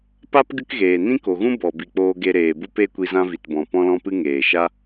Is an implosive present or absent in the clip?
absent